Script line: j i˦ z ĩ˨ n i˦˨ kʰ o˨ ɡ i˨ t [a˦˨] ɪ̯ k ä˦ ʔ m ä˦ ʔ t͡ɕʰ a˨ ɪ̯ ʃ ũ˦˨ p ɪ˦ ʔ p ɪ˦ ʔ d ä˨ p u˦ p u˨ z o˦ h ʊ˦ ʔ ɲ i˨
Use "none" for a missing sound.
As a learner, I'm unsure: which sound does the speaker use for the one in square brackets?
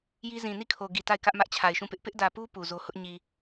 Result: a˦˨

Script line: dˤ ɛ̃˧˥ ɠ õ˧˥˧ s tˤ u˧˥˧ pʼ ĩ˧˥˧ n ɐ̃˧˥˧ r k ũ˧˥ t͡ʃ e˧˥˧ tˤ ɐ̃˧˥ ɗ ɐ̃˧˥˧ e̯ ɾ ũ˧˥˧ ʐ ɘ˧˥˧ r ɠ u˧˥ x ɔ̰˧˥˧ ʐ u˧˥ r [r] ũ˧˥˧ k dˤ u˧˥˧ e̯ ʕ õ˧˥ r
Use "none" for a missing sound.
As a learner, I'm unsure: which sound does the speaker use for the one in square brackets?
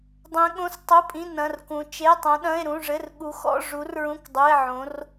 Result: ɹ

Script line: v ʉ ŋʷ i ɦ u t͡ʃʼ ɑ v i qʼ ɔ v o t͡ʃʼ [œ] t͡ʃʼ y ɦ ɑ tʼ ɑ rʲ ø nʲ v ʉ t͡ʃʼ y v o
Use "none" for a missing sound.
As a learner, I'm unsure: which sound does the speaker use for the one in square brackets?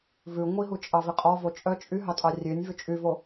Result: œ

